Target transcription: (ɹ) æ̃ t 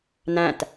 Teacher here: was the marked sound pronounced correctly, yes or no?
no